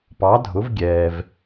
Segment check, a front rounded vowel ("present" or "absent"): absent